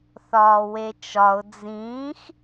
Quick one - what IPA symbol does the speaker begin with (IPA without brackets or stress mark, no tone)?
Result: θ